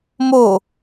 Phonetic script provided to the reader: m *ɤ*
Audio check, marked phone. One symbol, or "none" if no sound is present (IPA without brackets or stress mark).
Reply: o